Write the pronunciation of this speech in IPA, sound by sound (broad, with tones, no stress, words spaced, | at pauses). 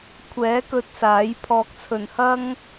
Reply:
kʷʰɛː˨˥kɵ˧t̚ saː˨˥j pʰɔː˨k̚t͡sʰɵ˨˩nhɐ˥ŋ